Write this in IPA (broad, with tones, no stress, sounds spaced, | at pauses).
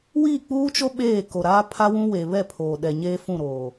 w iː˦˨ k͡p uː˦ t͡ʃ o˦ ɓ eː˦˨ k o˨ ɾ aː˦ pʰ a˦ w ũ˦ w eː˨ β ɛ˦˨ pʰ oː˨ ɗ ɛ˨ ɲ eː˦ f ũ˦˨ ɾ oː˨